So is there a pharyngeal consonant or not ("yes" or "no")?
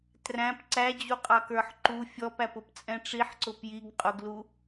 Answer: yes